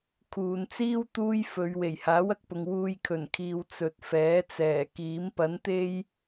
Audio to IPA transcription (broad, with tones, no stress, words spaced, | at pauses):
kʰuː˨nt͡siː˥w t̪uː˥j fɵ˨˧ɥ we˨˩jhaː˨˥wɐ˨k̚pʊ˨ŋ wuː˧jkʰɵ˨˩nkʰiː˨w t͡sɵ˨t̚fɛː˨˥t͡sɛː˨˩kiː˨˥m pɐ˨˥nt̪e˥j